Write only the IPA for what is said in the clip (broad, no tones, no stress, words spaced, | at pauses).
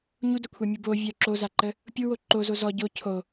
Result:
ɲudɐkʷʰa mʲubo vʲœ ǁozaǃə | pʲuwo ǃozo zɔ ɟo cʰo